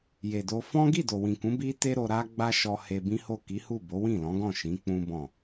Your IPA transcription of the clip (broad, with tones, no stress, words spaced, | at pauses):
je˨do˧ fɔ̃˦ ɡi˦˨do˨wĩ˨kũ˨˦ bi˦te˦ɾo˧ɾa˦ ɡ͡ba˦ʃɔ˧ he˧bĩ˦ho˦˨ ki˨˦hu˦˨ bo˨˦wĩ˦˨lɔ̃˨˦ɡɔ̃˦˨ ʃĩ˨˦k͡pũ˦bɔ̃˦˨